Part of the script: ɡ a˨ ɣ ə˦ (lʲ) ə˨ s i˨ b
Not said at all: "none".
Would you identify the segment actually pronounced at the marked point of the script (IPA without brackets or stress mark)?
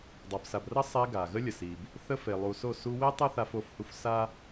lʲ